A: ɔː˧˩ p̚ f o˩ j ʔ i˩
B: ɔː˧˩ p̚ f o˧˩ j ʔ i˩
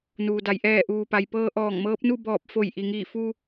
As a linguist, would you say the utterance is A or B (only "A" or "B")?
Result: B